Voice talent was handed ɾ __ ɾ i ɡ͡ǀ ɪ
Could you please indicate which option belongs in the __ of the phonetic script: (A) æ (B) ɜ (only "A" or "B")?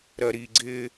B